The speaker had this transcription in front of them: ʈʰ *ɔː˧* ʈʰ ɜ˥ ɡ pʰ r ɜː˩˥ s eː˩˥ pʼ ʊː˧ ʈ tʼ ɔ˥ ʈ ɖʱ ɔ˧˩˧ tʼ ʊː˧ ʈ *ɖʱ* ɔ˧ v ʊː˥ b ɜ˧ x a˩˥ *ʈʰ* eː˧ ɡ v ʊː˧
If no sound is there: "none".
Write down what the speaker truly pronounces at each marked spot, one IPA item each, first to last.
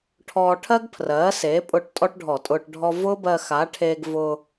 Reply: ɔː˧, ɖʱ, ʈʰ

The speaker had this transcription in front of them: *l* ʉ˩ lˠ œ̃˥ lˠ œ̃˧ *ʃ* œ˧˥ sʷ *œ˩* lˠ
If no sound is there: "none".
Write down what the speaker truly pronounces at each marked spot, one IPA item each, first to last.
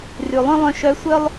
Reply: r, ʃ, œ˥

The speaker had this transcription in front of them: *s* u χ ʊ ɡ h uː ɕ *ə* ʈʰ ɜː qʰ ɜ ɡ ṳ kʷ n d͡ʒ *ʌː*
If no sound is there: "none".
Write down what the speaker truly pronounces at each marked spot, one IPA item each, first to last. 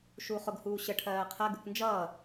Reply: ʃ, ə, ʌː

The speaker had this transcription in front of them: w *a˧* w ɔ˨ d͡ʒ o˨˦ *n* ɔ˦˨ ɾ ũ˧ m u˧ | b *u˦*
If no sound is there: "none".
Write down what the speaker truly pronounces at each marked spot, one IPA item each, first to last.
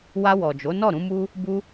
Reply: a˧, n, u˧

